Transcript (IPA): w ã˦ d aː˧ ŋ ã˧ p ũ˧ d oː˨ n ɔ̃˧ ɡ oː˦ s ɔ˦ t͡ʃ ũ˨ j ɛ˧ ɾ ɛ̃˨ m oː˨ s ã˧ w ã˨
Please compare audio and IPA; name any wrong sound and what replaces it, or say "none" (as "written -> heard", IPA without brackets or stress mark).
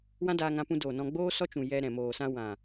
ɡ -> ɡ͡b